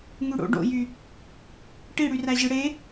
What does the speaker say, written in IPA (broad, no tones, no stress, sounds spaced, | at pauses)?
ŋ y ɽ o̰ ɖ o̰ j y | ʈ i ɽ y r æ ʑ ɯ ɽ e